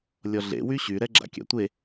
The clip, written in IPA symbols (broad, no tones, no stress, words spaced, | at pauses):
lʲɔɮḛ wyɕy ɾɛɡ͡ǁa̰kʲa̰tʷe